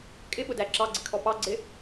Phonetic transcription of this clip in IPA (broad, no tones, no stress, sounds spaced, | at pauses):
kʼ ɪ ɓ ʊ d æ ǁ ɑ ɡ͡ǀ ɪ kʰ ɔ p ɑ ɡ͡ǀ ɪ